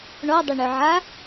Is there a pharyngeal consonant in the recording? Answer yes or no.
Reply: yes